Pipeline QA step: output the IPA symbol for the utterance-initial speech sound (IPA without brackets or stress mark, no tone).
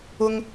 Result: ʊ